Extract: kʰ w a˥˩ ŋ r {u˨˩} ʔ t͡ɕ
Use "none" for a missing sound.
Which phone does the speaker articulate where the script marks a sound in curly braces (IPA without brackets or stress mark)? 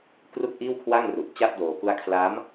u˨˩